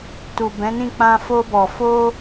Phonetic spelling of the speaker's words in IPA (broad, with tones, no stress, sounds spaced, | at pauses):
t u˨ b ɛ̃˨˦ n ĩ˦˨ k͡p ã˧ f o˧ b ɔ˨ f o˧